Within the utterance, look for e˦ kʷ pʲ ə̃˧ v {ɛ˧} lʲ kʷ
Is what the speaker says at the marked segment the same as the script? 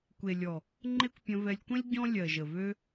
yes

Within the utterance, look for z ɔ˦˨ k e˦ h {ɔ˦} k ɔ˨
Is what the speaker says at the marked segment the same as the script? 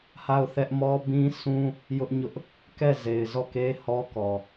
yes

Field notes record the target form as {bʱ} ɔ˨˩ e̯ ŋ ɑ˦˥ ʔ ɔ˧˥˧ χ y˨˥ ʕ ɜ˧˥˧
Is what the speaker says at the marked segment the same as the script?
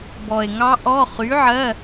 no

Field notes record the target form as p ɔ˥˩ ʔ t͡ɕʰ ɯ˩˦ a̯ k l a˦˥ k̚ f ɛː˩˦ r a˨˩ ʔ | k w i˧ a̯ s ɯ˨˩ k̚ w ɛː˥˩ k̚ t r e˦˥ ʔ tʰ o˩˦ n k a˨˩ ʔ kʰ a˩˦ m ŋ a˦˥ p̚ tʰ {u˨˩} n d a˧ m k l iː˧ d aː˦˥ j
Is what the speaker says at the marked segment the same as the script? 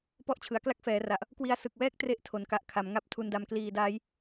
no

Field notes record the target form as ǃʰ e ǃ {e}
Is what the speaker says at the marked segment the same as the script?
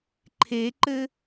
no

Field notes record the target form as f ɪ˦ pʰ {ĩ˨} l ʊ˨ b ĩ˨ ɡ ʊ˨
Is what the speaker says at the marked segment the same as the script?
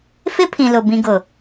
yes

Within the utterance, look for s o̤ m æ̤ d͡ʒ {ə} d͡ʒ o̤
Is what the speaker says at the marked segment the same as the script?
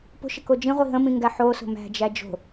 no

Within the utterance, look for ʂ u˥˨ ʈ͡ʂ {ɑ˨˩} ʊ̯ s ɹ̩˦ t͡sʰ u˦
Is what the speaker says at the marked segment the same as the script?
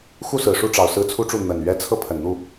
yes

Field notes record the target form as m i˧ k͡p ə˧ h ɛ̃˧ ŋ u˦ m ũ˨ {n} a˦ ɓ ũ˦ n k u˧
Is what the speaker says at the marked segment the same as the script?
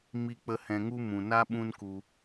yes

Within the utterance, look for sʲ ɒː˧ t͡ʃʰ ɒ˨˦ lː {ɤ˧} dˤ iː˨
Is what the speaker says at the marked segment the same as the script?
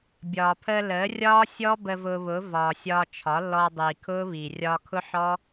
no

